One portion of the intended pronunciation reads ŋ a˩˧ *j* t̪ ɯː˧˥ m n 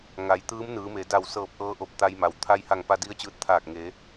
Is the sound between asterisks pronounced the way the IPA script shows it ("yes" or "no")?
yes